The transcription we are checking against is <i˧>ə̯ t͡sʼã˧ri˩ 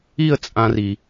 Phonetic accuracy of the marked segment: incorrect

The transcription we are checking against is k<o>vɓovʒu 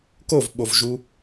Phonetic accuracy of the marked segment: correct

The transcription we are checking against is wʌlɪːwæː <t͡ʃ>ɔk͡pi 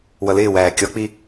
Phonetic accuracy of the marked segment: incorrect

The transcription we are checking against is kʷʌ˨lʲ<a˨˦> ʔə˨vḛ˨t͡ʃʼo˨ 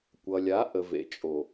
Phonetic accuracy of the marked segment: correct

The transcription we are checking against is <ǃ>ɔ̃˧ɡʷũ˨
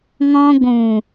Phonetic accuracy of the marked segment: incorrect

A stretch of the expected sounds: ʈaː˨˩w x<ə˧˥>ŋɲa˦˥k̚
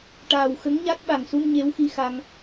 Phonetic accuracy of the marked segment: correct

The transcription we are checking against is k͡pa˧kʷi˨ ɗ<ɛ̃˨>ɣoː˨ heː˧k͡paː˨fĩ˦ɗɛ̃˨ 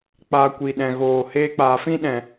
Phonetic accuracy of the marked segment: correct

